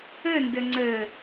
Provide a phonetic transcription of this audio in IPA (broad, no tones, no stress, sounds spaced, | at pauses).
ə n d ə ŋ͡ǀ ə